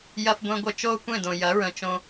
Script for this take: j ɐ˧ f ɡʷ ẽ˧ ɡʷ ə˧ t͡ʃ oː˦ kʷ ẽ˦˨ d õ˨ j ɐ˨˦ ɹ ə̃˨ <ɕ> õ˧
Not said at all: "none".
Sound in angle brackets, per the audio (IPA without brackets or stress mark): t͡ʃ